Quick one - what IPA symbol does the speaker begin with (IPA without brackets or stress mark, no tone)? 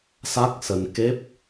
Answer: s